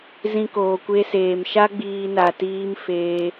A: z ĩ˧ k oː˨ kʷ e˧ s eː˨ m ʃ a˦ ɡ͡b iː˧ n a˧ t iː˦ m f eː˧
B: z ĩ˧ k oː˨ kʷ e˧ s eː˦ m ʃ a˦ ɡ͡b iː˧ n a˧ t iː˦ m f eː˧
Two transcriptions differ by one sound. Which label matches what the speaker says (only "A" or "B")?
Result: A